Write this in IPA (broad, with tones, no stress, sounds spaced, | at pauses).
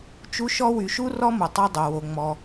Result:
t͡ʃ u˧ ʃ ɔ˧ w y˩ ʃ u˧ r ɔ˧ m u˩ tˤ ɛ˧ dˤ o˩ w o˩ ŋ͡m ɔ˩